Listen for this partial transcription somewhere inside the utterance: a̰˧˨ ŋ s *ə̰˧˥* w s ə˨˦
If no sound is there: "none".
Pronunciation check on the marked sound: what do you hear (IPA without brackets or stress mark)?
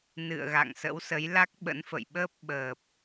ə̰˧˥